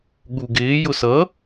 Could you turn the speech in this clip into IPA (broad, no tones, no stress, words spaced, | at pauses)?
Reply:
ɠuɡɪː jʊsʌ